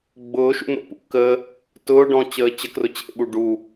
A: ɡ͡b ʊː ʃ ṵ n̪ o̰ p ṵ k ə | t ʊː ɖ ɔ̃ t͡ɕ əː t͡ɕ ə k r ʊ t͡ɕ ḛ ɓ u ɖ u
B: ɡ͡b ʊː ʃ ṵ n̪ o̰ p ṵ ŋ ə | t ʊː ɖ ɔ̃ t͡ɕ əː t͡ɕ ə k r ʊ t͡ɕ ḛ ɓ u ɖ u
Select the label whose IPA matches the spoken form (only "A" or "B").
A